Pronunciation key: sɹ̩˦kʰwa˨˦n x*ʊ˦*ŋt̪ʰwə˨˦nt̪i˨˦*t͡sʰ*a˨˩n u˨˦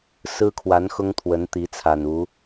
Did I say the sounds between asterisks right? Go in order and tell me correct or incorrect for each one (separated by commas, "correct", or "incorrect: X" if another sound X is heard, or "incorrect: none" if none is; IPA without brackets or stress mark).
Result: correct, correct